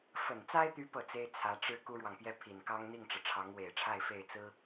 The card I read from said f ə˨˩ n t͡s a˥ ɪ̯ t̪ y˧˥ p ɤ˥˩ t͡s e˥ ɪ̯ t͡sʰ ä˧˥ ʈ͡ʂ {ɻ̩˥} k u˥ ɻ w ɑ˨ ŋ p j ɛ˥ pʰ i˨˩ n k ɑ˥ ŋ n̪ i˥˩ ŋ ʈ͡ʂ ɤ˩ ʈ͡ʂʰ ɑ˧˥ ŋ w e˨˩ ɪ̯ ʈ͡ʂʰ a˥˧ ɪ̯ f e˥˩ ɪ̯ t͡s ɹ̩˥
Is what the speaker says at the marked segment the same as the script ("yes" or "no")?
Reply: yes